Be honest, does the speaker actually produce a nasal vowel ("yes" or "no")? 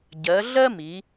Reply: no